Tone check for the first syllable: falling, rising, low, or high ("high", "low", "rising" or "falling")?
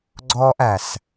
high